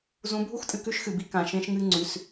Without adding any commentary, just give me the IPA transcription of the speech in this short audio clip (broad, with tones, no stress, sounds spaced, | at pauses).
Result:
z ũ˨˦ bʱ u˦ x tʼ ɨ˨ k ʉ˦ ʃ x ɨ˨ b i˦ k ã˨ ʃ ẽ˦ ʃ ŋ ɨ˦ ŋ͡ǀ ʉ˨˦ s